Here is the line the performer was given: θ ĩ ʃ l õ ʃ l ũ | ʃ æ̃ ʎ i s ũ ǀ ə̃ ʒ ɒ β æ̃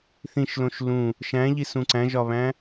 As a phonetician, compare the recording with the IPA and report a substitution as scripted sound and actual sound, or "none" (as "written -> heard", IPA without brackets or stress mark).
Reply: ə̃ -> æ̃